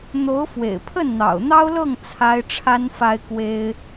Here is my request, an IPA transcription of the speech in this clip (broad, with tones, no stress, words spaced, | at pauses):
n̪o˧˥ʊ̯fwḛ˨˩ɪ̯ pʰə˥˩nn̪ɑ̰˨˩ʊ̯n̪ɑ˥ʊ̯lɤ˥˩ŋ t͡sʰa˥ɪ̯ʈ͡ʂʰa˥n fa˥ɪ̯kwe˥ɪ̯